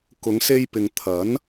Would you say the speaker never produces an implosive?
yes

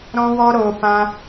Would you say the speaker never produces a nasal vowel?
no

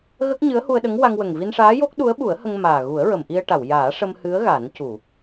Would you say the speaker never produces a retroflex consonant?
no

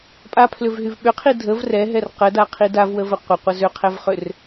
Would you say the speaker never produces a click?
yes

